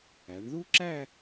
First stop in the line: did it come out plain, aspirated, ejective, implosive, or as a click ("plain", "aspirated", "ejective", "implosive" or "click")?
click